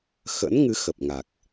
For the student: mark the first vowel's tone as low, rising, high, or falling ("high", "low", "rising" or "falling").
rising